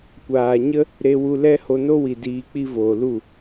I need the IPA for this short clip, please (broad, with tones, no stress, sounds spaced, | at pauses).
kʷ aː˨ ɲ ə˦ | ɾ e˧ w u˧ l ɛ˦ h o˧ n o˦ w i˨ d iː˧ k͡p i˦ v oː˨ l u˦˨